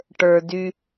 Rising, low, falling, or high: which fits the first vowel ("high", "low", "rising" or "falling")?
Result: low